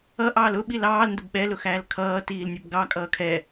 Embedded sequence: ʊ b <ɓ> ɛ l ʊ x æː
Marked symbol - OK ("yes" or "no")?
yes